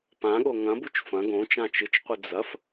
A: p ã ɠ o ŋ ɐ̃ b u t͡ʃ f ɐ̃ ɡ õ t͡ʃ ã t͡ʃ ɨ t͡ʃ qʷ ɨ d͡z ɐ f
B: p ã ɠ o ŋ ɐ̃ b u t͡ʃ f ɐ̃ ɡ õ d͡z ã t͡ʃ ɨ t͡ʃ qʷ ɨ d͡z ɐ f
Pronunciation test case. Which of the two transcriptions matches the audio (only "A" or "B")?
A